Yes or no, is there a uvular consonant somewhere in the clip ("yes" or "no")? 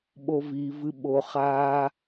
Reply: yes